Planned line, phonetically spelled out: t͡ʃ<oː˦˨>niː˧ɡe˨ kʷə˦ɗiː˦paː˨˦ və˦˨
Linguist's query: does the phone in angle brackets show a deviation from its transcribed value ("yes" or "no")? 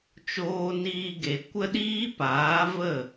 yes